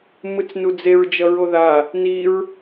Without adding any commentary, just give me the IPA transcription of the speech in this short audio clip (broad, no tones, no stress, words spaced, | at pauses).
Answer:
mɯt͡snud͡zeɹ d͡ʒʌɹoða | niɹ